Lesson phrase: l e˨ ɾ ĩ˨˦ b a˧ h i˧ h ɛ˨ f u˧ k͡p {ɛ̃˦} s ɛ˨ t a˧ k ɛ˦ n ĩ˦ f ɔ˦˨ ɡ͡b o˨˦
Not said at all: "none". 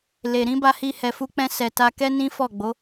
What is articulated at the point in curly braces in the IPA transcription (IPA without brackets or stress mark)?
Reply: ɛ̃˧